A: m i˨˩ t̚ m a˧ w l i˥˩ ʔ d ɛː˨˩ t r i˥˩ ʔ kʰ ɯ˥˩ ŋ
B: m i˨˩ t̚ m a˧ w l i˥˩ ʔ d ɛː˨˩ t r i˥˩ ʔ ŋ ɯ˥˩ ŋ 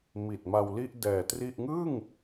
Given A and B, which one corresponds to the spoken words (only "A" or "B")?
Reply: B